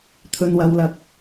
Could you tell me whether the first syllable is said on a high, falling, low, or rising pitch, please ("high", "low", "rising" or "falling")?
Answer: low